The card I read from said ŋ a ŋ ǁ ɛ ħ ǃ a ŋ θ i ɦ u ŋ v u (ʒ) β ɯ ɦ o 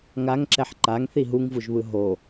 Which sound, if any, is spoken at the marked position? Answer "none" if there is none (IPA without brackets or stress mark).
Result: ʒ